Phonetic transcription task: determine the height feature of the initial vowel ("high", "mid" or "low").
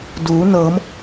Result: high